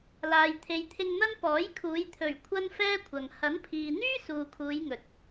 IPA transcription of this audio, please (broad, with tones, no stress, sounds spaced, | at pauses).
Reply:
l aː˨ j t̪ʰ e˨ j t̪ʰ ɪ˧ ŋ n̪ ɐ˥ n p ɔː˨˥ j kʰ uː˨˧ j t̪ʰ ɵ˨˩ ɥ kʷʰ ɐ˥ n f ɛː˥ kʷʰ ɐ˨ ŋ h ɐ˨˥ n pʰ iː˨ n̪ yː˥ s uː˨ kʰ uː˨˧ j ŋ ɵ˨ t̚